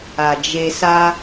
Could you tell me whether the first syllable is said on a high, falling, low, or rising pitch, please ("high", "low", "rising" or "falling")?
low